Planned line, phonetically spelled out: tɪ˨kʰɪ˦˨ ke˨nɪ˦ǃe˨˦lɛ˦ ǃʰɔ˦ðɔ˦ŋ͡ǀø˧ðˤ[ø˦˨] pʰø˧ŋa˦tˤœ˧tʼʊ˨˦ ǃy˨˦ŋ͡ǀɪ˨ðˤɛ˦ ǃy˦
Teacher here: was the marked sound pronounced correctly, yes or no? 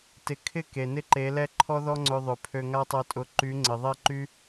no